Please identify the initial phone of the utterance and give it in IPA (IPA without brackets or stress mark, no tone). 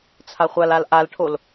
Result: t͡sʰ